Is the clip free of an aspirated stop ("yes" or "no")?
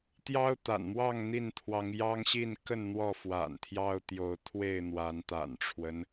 no